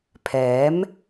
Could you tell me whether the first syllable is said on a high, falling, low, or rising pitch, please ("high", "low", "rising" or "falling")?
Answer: rising